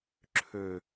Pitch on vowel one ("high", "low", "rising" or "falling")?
low